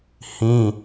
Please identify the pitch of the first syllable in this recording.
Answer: high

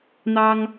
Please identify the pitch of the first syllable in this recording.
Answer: high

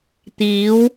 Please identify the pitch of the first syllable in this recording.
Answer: rising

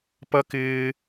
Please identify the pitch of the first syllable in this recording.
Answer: high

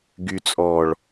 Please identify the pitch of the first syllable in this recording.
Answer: low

